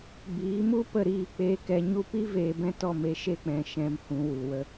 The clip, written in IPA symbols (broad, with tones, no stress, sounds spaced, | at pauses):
b iː˨˦ m u˦ p ə˦˨ ɾ iː˦˨ k͡p eː˧ k ɛ˧ ɲ u˧ p i˦ v eː˧ b ɛ̃˦ t ɔ˦˨ m e˧ ʃ e˧ k͡p ɛ̃˨ ʃ ɛ̃˨ m h ũ˨ w u˨ w ə˧